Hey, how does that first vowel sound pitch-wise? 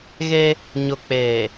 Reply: high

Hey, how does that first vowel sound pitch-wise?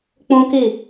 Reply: high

